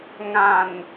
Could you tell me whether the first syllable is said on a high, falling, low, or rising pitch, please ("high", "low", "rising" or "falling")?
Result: low